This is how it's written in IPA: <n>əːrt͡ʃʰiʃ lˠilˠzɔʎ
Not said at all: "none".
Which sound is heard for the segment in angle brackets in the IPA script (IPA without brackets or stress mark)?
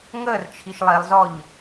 ŋ